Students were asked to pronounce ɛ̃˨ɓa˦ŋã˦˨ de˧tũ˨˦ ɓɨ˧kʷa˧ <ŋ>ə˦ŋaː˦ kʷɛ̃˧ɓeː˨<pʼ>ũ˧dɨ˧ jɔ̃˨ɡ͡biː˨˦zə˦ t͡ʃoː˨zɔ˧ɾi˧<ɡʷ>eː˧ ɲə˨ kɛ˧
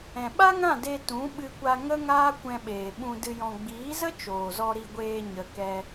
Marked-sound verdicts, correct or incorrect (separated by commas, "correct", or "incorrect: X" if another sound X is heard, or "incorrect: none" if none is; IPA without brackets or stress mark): correct, incorrect: ɓ, correct